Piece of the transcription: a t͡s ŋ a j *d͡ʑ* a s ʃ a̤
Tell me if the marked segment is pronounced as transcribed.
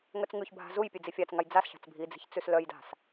no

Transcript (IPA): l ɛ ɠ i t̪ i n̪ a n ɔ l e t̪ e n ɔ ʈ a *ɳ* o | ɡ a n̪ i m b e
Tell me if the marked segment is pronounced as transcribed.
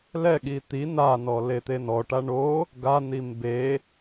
yes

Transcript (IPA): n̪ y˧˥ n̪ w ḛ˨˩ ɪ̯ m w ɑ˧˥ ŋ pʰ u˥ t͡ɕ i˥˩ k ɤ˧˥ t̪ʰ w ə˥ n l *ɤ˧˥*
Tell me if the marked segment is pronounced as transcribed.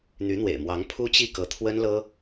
no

